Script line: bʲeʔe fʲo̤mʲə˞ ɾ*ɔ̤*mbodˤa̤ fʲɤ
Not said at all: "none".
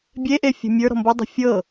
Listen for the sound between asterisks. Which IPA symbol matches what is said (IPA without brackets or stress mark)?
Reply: ɔ̤